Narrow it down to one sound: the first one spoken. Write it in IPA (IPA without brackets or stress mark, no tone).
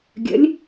ɡʲ